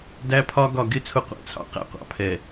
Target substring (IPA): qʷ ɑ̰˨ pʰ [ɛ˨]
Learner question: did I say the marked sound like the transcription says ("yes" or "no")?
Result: yes